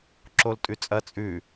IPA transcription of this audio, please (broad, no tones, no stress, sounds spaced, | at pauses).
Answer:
ǁ o l tʼ ʉ t͡sʼ ɐ t͡sʼ ʉ